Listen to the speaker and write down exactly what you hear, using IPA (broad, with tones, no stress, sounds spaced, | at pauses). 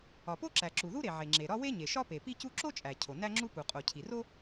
ɒ˩ p o˥ ǁ æ˩ ǁ u˩ ð u˥ ɾ e˩ ʕ e˩ ŋ͡ǁ e˩ ɾ ɒ˥ w e˥ ɲ e˩ ʃ ɒ˥ p e˩ p i˥ c u˥ ǁ o˥ t͡ʃʼ æ˩ cʰ o˩ n æ˥ ŋ͡ǁ u˥ p u˩ qʼ o˩ cʰ i˩ r o˥